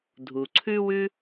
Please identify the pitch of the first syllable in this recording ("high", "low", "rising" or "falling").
low